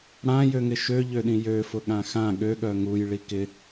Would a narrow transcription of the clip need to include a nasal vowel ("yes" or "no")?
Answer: yes